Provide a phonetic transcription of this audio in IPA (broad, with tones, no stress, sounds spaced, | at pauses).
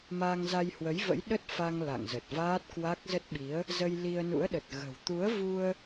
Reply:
m aː˧ ŋ z a˧ j h w ə˨˦ j v ə̰˧˥ j ɗ ə˦˥ t̚ f a˧ ŋ l a̰˧˨ ŋ z ə˨˩ t̚ v aː˦˥ t̚ k w a˦˥ k̚ z ə˦˥ t̚ ɓ i˨˦ ə̯ | z ə˧ j l i˧ ə̯ n ṵ˧˥ ə̯ ɗ ə˨˩ t̚ ɣ ə̤˨˩ w t̪ u˨˦ ə̯ v u˧ ə̯